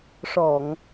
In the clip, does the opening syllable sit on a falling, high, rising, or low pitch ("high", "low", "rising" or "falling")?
low